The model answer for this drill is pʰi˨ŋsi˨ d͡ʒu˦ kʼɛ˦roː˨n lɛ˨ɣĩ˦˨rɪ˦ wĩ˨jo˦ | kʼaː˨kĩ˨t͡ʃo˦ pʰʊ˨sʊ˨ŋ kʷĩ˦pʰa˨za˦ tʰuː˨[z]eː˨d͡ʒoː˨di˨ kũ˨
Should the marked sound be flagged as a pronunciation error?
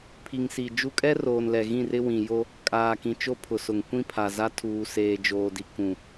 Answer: yes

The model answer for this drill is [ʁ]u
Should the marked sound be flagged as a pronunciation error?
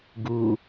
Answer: yes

